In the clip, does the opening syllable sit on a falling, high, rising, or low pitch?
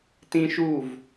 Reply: high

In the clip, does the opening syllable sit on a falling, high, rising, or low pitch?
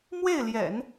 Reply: falling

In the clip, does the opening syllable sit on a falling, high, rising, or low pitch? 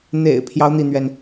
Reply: low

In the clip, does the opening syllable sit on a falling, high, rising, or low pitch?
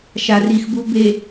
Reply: low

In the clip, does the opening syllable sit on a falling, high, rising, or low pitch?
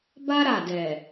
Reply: high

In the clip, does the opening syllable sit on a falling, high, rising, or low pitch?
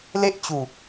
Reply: high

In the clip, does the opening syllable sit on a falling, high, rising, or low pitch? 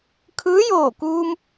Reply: rising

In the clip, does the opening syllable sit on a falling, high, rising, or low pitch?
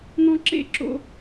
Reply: high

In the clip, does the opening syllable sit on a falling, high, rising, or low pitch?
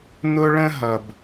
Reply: high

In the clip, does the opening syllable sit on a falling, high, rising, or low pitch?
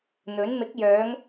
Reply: rising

